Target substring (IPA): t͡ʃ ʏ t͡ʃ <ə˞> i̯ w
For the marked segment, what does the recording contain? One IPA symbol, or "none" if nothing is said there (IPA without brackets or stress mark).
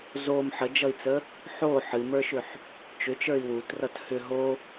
ə˞